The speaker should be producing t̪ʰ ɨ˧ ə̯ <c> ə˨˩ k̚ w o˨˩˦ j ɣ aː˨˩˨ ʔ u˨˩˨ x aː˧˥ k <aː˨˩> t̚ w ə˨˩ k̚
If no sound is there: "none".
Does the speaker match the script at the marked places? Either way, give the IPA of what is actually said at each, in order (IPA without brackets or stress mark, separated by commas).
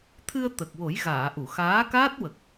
t̪, aː˦˥